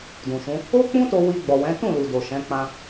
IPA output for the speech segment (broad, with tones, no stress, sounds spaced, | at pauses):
d ũ˨ ʃ ũ˨˦ | o˦ k͡p ũ˦ t o˧ w i˧ ɡ͡b ɔ˨ w ɛ̃˨˦ t ũ˦˨ l u˨ d o˨ ʃ ɛ̃˨˦ k͡p ã˧